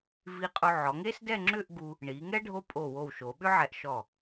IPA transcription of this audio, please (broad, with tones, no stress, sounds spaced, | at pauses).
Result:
v i˧ qʼ o˧ ʕ ɔ˩˧ ŋ e˥ s d ɛ˥˧ ŋ͡ǁ ʏ˥˧ ʔ ɡ u˧ | ɳ i˩˧ ŋ ɛ˥ ɖʱ o˥ pʼ o˧˩ w o˧˩ w ʃ o˩˧ ɓ ʏ˥ ʕ ɛ˧ ʔ ʃ ɔ˧˩